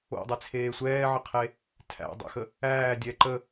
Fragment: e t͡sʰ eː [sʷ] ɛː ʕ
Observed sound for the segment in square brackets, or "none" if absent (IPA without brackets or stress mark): sʷ